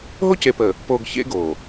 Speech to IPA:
ɦ o˦ c e˨ p əː˨ | p oː˨ ɡ ç ḛ˦ ɡ oː˨

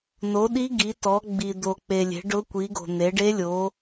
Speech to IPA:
n o˨˦ ɗ i˦˥ ɡ i˨˦ t ɔ˨˦ ɡ͡b i˨ d̪ o˨ k͡p e˨ lʲ e̤˨˦ ɖ ʊ˦˥ kʷ i˨˦ ɡ o̤˨ n̪ e˨˦ ɖ e˦˥ lʲ o˨˦

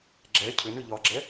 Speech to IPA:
ɡ͡ǁ ɛ cʰ ʏ n ʏ ʎ ɒ ɡ͡ǁ ɛ

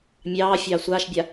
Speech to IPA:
mʲ ɑː fʲ ɑː sʷ aː ʃ bʲ a

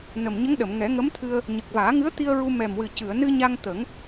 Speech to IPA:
n ə˨˩ m ɲ ə˧˥ ŋ ɗ ə˨˩˨ m ŋ ɛ˨˩˦ ŋ ə˧˥ m t̪ʰ ɨ˧ ə̯ | ɲ ə˨˩ k̚ v aː˨˩˦ ŋ ɨ˧˥ ə̯ t̪ i˧ ə̯ ɹ u˧ m ɛ˨˩ m w ɨ˨˩ c ɨ˨˩˨ ə̯ n ɨ˧ ɲ a˧ ŋ t̪ ə˨˩˦ ŋ

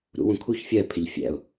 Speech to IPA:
ɾ ṵ w ũ kʰ u ç fʲ ɜ pʰ ɪ ʎ fʲ æ̰ ʊ̯

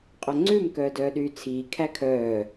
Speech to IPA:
qʼ œ ŋ͡ǀ ʉ m k œː d œː ɗ yː t͡sʰ iː kʰ æ kʰ œː

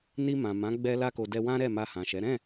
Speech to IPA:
n i˧ m ã˨ m ã˨˦ ɡ͡b ɛ˧ l a˧ k o˨ d ɛ˧ w ã˦ ɾ ɛ˦˨ m a˧ h ã˨ ʃ ɛ˨˦ ɾ ɛ̃˦˨

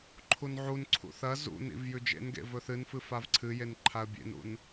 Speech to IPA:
ǃʰ u n ʕ u n ǀʰ ṵ θ ɐ z ṵ n ḭ v j ʉ d͡ʒ ḛ n ɡ ḛ v ɵ θ ɨ n f ɨ f a v ǀʰ ɨ j e n ǃʰ a ə̯ bʲ ḛ n ṵ n

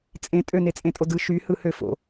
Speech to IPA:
t͡sʼ ẽ tʼ ø n e t͡sʼ ẽ tʼ o d ɯ ʃ y h ɯ h ø f o̰

